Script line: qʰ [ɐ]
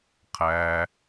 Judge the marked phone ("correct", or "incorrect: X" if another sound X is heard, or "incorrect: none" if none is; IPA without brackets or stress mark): incorrect: æ